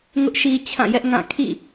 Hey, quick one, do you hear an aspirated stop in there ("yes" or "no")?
yes